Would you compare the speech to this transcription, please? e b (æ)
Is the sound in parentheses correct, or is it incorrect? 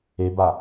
incorrect